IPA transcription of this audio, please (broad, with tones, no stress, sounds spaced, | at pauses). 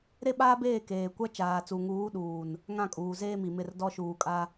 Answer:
ɾ e˦ ɓ aː˦ b eː˦˨ k eː˨ kʷ a˦ t͡ʃ aː˨ t͡s u˨ ŋ uː˨˦ ɗ uː˨ n | ŋ ã˦˨ kʼ uː˨ z eː˦ m i˨ m ɪ˦˨ r d ɔ˦ ʃ uː˨ kʼ a˦